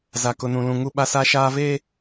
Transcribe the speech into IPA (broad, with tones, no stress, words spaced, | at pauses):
za˦kʊ˦nũ˦lũ˦ ŋu˦ɓa˦sa˦ʃaː˦ ve˦